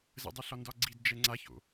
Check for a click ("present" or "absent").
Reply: present